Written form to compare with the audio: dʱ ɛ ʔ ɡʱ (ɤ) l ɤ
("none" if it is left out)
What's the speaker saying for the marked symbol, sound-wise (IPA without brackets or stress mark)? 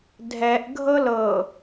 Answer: ɤ